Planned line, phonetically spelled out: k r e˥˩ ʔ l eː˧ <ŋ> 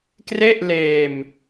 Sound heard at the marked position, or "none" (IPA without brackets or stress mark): m